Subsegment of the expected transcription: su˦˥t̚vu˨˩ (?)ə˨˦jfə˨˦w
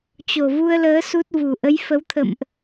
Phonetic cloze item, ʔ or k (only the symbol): ʔ